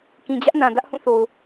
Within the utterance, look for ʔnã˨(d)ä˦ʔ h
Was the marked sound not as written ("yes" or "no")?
no